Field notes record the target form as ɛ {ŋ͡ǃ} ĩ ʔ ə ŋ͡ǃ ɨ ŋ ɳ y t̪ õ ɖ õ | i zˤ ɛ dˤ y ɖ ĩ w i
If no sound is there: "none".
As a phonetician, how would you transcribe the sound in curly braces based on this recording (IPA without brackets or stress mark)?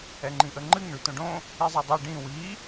ŋ͡ǃ